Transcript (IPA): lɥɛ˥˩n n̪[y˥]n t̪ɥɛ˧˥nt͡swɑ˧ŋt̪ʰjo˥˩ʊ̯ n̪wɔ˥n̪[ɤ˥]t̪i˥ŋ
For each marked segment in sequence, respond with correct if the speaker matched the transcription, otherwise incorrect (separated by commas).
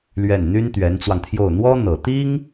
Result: correct, incorrect